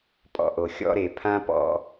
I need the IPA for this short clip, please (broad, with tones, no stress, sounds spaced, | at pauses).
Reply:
pʼ ɔ̰˧ ʔ o˨ xʲ ɔ̰˧ ɾ e˨ pʰ ã˦ p ɔ̰˧